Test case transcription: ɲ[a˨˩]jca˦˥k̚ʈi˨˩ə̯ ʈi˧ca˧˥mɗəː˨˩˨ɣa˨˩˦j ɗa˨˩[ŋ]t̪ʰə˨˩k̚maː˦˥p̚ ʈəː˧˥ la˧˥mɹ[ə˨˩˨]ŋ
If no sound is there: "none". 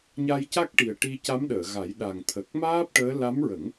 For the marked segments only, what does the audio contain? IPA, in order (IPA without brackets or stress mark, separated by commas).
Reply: a˧, ŋ, ə˨˩˦